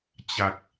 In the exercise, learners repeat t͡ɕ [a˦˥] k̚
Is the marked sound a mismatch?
yes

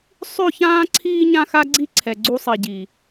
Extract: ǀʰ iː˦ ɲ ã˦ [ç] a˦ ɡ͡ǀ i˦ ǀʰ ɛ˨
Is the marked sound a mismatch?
yes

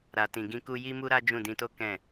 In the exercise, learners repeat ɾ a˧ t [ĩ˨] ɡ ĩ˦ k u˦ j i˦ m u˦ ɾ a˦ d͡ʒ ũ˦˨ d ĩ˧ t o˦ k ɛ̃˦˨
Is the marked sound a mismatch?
yes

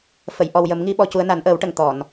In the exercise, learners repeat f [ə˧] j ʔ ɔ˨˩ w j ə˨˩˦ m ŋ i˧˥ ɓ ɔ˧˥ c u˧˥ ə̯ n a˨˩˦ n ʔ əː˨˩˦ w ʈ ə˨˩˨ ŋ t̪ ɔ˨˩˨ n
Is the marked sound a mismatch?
yes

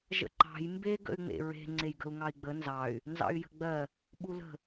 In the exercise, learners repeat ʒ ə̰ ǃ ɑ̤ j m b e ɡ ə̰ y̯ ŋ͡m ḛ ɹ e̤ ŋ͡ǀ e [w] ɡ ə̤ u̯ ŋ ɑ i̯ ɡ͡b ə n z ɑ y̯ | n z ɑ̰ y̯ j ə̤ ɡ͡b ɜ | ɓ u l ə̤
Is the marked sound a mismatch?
yes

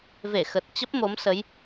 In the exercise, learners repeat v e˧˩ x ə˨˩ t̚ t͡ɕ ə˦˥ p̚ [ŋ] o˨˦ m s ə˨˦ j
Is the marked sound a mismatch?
yes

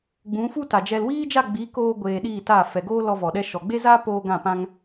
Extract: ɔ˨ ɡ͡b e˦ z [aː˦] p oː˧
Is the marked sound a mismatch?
no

